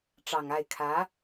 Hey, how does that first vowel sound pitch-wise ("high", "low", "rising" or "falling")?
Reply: low